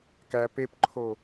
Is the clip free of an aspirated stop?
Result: no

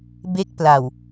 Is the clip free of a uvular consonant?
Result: yes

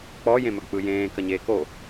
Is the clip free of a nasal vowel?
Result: no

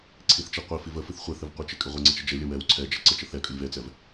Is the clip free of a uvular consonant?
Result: no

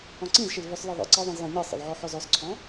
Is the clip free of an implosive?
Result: yes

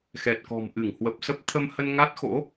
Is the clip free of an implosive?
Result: yes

